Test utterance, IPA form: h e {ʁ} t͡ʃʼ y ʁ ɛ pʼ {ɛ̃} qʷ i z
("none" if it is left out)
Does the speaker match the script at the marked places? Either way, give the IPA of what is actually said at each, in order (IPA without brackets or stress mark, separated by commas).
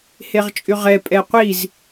ʁ, ɛ